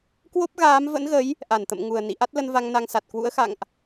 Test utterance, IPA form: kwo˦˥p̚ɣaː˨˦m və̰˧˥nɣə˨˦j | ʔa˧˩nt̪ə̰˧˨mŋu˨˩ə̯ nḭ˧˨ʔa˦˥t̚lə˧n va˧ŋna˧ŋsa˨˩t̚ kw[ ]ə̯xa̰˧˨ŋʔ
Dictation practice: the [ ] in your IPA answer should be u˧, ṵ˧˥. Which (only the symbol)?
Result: ṵ˧˥